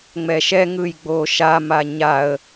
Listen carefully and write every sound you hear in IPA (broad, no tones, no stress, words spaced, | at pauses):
ŋ͡mɛʃɛŋɯj ɡ͡boʃama ɲaə̯